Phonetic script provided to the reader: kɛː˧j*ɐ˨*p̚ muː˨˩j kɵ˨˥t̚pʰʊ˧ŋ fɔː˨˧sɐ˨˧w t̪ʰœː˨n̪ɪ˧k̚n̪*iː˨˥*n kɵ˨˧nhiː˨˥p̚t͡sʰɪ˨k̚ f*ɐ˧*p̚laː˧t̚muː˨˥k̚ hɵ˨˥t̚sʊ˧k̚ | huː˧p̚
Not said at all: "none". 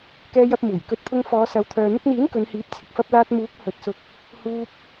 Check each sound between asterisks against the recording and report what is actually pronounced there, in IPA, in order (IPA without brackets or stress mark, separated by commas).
ɐ˧, iː˨˥, ɐ˧